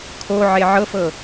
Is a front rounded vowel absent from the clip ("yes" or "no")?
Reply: yes